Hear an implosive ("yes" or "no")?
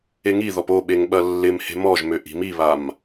yes